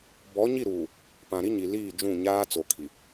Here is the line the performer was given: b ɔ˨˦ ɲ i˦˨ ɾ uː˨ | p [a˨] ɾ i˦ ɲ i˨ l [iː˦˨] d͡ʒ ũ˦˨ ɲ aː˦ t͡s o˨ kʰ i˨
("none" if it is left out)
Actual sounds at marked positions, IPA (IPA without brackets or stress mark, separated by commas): ã˨, iː˦˨